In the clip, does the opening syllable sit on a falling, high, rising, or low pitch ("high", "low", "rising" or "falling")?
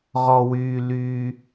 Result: low